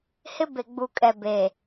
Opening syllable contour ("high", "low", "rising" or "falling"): high